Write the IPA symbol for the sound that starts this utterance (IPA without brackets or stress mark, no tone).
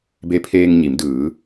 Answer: b